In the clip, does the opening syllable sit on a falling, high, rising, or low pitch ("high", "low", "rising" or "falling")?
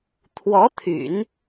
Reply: rising